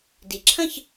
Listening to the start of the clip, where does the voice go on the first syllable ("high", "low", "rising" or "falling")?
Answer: rising